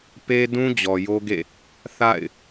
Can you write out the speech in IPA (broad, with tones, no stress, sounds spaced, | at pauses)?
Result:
p e˦ d ũ˦ d͡ʑ ɔ˨ j o˦ ɡ ḛ˦˨ | θ a̰˦˨ ɪ̯